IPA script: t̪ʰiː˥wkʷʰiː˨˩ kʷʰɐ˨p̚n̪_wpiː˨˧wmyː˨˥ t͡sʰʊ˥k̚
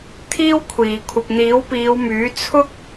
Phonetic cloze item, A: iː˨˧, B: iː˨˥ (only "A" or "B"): B